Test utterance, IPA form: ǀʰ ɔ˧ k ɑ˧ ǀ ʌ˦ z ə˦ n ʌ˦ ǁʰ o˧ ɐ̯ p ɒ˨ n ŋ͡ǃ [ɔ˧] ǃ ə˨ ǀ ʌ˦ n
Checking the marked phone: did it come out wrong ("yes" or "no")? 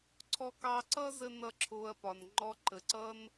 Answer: no